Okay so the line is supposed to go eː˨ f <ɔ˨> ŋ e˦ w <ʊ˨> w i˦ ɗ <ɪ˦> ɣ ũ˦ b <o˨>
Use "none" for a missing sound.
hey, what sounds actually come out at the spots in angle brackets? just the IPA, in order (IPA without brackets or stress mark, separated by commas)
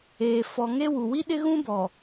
ɔ˨, u˨, ɪ˦, ɔ˨